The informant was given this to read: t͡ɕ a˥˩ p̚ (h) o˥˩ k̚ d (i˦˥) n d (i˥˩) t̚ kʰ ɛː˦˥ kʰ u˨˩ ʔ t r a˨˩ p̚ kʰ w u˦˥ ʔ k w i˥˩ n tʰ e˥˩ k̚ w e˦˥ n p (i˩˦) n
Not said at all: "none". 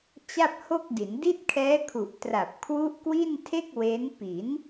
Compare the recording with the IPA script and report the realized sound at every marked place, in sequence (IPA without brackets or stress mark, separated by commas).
h, i˩˦, i˥˩, i˩˦